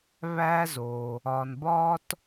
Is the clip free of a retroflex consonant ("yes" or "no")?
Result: yes